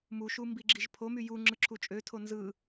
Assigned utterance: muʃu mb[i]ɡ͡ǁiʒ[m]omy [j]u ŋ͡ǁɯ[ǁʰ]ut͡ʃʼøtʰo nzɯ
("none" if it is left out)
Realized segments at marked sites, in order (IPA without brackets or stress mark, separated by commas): i, pʰ, j, ǁʰ